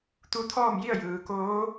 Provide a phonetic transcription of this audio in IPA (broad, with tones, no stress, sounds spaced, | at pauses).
t̪ u˧ t̪ʰ ɔː˥˨ m j i˥˨ ə̯ j ɯː˩ k oː˧˥